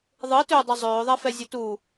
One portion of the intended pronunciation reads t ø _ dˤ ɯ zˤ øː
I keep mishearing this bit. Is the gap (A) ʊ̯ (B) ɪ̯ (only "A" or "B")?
A